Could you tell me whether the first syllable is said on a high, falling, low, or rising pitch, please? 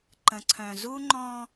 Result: low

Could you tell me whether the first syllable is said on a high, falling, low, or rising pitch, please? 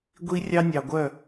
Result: high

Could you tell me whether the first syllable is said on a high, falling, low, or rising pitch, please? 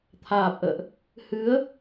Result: low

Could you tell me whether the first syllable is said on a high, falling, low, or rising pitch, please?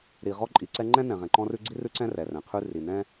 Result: low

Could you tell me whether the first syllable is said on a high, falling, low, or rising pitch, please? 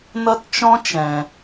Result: high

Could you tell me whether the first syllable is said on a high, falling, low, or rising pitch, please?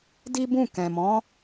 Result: high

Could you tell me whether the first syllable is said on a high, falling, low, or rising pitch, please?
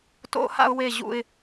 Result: high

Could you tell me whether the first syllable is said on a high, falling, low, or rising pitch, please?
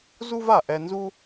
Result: high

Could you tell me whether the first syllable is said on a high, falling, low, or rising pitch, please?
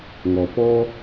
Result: low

